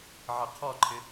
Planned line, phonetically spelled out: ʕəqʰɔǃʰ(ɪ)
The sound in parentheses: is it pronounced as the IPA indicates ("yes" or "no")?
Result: yes